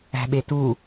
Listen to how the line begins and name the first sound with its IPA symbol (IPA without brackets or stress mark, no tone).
æ̤